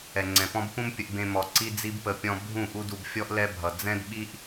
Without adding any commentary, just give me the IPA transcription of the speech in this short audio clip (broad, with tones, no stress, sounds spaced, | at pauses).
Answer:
ɛ˨ ŋ͡ǀ ɛ̃˨ p ɔ̃˦ b p ũ˦ m pʲ ə˧ ʔ b ẽ˧ m ɔ˨ ǀ i˦ d͡z i˦ b p ə˧ pʲ ɔ̃˧ bʱ ũ˦˨ ʔ u˦ d u˧ b fʲ ɔ˦ ʔ l ɛ˦ bʱ ʌ˨ d͡z ɛ̃˦ d ɓ i˦ ʔ